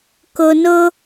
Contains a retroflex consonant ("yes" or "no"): no